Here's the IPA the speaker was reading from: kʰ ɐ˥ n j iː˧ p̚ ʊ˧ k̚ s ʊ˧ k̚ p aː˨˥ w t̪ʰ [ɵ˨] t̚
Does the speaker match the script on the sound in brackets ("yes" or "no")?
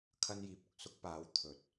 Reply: yes